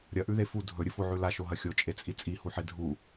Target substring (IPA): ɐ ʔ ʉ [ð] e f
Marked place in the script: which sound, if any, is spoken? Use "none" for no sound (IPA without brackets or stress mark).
ð